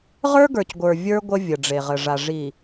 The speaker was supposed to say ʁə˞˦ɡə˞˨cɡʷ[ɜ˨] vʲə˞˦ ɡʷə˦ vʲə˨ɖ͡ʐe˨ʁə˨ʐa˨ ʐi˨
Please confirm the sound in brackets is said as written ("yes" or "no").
no